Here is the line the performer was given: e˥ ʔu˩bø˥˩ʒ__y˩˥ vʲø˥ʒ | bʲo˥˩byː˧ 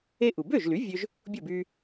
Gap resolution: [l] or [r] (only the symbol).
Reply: l